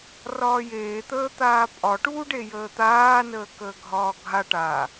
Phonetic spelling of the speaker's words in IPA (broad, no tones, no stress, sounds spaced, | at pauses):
r ɒː j eː t̪ əː t̪ aː pʼ ɒ ʈ uː ɖ e j əː t̪ aː n əː k əː ɡʱ ɒː ɡʱ a ʈ a